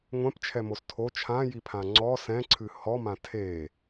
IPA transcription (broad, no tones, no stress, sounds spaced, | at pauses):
ŋʷ ɛ̃ p t͡ʃʰ ɛ m o s tʰ o t͡ʃʰ ã j i pʰ ã ŋ͡ǀ ɔ s ɛ̃ ǀʰ ɨ h ɔ m ã tʰ e